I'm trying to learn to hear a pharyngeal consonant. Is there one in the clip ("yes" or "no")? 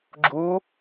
no